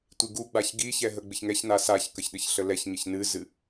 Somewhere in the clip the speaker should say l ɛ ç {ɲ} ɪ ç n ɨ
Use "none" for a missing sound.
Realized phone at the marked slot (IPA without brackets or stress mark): ɲ